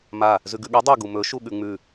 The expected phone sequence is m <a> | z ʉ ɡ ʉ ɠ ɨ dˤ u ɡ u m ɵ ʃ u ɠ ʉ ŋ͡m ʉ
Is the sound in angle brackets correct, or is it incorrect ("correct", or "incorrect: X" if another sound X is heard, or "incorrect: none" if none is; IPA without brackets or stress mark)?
correct